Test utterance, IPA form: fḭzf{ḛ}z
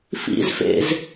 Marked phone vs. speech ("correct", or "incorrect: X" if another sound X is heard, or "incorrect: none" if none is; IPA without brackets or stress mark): correct